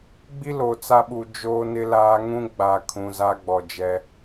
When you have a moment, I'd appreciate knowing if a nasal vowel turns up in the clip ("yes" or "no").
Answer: yes